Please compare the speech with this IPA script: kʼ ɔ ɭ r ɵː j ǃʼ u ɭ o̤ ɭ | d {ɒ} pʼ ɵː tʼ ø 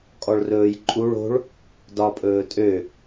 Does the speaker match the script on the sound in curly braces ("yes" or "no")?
yes